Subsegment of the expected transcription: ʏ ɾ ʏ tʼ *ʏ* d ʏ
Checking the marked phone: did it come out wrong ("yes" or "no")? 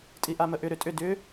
no